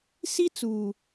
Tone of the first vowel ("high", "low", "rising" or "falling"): high